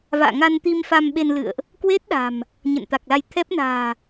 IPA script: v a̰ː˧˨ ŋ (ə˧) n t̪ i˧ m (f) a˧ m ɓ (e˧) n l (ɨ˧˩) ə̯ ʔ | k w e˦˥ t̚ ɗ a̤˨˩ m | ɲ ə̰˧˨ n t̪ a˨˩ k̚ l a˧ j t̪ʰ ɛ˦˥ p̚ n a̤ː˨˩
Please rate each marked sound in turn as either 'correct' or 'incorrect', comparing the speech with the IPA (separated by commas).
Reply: incorrect, correct, correct, incorrect